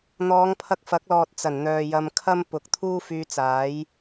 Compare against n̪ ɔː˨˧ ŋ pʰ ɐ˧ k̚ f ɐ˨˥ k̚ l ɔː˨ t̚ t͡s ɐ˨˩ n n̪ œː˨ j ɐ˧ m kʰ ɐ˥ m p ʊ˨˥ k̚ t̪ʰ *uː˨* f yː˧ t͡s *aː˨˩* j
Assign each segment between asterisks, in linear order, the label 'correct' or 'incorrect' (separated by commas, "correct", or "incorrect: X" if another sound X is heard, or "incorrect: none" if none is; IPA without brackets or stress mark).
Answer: incorrect: uː˥, incorrect: aː˨˥